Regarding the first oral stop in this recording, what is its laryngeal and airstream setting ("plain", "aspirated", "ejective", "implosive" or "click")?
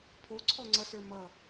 aspirated